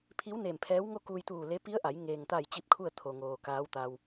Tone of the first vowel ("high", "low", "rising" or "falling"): rising